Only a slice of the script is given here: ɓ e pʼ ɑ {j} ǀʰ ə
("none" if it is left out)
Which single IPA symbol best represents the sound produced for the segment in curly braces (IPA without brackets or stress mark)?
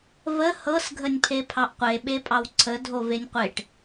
w